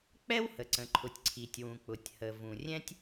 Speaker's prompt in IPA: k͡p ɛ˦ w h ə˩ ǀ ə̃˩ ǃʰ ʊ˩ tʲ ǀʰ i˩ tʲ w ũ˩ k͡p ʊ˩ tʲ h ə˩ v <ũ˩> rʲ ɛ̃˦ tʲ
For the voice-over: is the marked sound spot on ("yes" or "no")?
yes